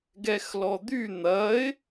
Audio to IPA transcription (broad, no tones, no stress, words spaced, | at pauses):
ɡɛxlɔd̪y n̪ɐɪ̯